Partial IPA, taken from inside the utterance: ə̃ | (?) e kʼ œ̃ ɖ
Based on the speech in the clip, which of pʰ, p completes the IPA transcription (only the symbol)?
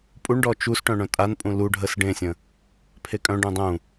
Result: pʰ